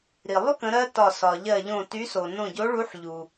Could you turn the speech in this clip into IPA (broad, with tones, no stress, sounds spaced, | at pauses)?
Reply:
ɾ i˩ lˠ y˥ k ə̃˨˥ ɾ ɜ˥ t ɒ˧˩ s ɒ˩ ʎ ɜ˧˩ ʎ õ˧˩ t y˨˥ s o˩ n õ˧˩ ɟ o˨˥ ɭ u˨˥ ħ ʎ u˩